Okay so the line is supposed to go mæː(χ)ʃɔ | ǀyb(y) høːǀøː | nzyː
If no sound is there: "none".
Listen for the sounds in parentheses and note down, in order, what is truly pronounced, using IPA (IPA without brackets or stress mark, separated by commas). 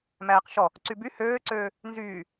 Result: q, y